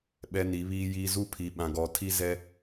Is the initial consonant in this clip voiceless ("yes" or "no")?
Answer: no